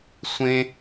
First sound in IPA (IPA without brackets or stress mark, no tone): sʷ